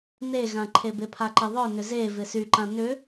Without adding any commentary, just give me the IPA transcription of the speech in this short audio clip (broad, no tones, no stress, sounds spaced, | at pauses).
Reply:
n e ɣ ã ǃʰ e b e pʰ a ǃ ə ðˤ œ n ʏ z e v ɪ s y ǃ ã n ʏ